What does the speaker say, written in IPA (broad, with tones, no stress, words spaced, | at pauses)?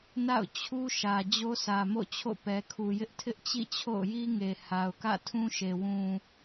na̰˦˨ʊ̯ t͡ɕʰu˦ʃä˨ d͡ʑo˦sʰä˨mo̰˦˨ t͡ɕʰo̰˦˨pɛ˨kʰu˨jɪ˦ʔ tʰɪ˦ʔt͡ɕḭ˦˨ t͡ɕʰo̰˦˨ʊ̯ji˦ŋe˨ ha˨ʊ̯kä̰˦˨tʰũ˦ʃe˨ wũ˨